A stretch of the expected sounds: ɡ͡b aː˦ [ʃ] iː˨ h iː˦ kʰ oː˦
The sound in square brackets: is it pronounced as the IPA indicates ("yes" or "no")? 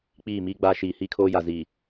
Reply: yes